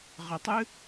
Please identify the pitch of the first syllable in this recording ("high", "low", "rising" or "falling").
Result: low